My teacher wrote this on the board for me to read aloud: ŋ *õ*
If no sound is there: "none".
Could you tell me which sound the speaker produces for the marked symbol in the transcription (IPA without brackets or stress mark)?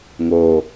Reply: o